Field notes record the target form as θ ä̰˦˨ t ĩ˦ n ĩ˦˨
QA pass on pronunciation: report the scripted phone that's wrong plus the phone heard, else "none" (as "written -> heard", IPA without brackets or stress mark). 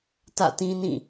θ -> t